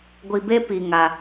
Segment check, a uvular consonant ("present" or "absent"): absent